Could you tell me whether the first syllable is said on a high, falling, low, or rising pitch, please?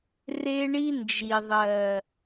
high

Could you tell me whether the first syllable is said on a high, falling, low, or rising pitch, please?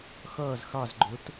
falling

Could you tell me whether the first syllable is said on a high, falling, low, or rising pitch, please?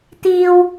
high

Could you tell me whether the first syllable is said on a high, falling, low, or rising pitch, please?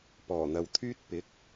low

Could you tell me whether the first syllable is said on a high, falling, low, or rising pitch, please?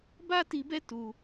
high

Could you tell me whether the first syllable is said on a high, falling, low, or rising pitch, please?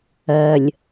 low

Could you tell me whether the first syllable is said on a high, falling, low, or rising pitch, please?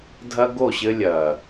high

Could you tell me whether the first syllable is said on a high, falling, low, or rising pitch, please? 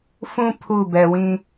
high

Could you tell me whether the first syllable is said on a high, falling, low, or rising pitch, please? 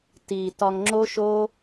low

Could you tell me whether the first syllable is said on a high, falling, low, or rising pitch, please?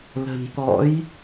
low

